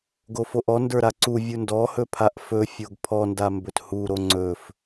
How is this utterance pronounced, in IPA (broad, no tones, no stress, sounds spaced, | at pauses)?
ɡ o f o ʔ ɔ n d ə˞ ɾ a ǀ u vʲ u n d ɔ h ɵ pʰ a ʔ f ɵ fʲ o ɡ pʰ ɔ n d a m b ɵ t h u ɾ o ŋ͡ǀ ɵ f